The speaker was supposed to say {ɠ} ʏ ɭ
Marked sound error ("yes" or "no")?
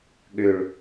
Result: no